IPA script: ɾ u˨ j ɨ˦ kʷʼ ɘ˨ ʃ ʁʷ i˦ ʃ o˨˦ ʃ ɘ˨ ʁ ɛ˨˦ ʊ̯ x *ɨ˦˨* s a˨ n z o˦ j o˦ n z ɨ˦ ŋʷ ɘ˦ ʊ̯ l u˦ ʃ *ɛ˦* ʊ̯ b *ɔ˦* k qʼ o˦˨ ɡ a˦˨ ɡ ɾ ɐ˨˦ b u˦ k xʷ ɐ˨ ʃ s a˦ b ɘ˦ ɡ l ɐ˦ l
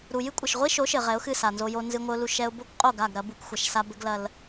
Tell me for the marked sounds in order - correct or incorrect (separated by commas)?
correct, correct, incorrect